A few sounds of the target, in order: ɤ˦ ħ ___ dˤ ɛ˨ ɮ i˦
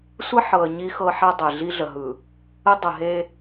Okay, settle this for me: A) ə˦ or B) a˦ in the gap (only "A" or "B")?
B